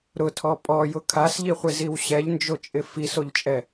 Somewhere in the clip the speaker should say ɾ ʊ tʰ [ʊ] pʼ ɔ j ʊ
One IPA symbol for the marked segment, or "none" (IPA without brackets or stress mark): ɔ